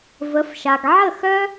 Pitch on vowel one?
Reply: rising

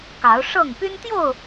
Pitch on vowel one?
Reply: rising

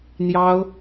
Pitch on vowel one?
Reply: high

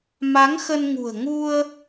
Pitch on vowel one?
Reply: rising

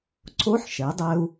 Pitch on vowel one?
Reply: rising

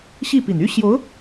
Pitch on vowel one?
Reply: falling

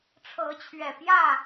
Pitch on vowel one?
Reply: rising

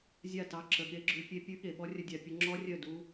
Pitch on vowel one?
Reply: falling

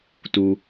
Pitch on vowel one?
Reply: low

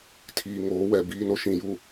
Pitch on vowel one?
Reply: low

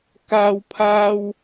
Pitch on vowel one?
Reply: high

